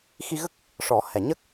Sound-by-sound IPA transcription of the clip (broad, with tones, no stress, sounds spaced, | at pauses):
x i˧ ɣ ə˦˥ k̚ | ʂ ɔ˨˩˦ h ɛ˨˩˨ ɲ ə˦˥ k̚